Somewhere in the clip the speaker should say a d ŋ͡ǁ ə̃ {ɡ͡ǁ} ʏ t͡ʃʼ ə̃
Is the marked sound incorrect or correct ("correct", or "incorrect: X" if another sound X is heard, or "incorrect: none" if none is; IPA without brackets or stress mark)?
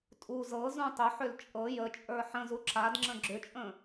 correct